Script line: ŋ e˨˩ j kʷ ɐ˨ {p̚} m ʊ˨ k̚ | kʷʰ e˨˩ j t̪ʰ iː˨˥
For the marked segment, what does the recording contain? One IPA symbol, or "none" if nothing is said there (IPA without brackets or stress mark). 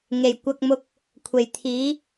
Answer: k̚